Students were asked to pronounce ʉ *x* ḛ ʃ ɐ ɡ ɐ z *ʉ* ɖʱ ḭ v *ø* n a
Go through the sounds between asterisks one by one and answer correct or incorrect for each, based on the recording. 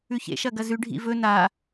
incorrect: ç, correct, incorrect: ɵ

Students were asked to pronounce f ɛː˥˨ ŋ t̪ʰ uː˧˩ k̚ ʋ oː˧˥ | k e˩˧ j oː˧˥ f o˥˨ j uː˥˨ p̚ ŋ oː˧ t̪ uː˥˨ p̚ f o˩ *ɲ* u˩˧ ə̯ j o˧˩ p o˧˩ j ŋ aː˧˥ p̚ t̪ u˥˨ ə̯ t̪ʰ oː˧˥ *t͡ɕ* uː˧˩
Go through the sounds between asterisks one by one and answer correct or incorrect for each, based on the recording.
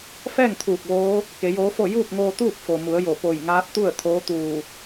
incorrect: m, incorrect: t̪

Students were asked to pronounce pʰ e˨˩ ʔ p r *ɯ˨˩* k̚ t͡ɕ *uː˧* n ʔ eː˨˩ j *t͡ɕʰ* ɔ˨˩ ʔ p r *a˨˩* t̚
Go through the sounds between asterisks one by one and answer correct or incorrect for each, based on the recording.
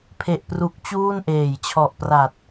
incorrect: u˨˩, incorrect: uː˥˩, correct, correct

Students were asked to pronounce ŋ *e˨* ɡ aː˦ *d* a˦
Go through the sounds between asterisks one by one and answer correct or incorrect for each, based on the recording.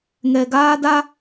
incorrect: ɛ˨, correct

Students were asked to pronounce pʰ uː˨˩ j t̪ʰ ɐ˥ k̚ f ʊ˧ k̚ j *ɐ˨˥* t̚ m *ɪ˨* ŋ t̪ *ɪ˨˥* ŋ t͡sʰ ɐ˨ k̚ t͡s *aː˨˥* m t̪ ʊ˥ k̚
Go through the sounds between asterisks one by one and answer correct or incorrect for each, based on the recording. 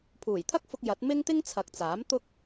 correct, incorrect: ɪ˥, incorrect: ɪ˥, correct

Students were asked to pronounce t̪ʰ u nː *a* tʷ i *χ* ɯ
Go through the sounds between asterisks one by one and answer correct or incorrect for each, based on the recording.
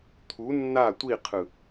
correct, incorrect: qʰ

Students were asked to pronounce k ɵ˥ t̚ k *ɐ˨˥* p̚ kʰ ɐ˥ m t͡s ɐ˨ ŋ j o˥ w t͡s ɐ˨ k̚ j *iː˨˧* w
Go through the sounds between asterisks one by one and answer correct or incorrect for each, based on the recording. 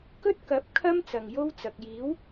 correct, incorrect: iː˨˥

